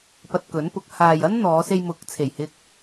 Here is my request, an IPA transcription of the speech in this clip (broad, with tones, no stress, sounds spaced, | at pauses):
p ɐ˧ t̚ k ɵ˨˥ n p ʊ˨˥ k̚ h aː˨ j ɐ˥ n n̪ ɔː˨˧ s e˧ j m ʊ˨˥ k̚ t͡sʰ e˨˩ j h ɪ˧ k̚